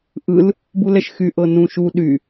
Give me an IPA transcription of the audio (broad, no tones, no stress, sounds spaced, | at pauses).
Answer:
ʔ ɯ l | b u l ɛ ʃ x y ʔ ɤ n ũ ʃ u ɗ y